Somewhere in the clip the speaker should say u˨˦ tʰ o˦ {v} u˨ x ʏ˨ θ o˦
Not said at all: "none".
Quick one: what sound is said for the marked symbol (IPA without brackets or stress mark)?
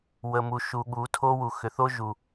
w